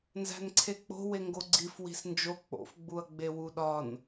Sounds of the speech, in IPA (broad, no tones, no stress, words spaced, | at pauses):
nzæ̤nǀʰek͡po̤ weŋɡoɡ͡ǀif wi̤snd͡ʒo k͡po̰fɡ͡buɐ̯ ɡ͡bewuɗɒn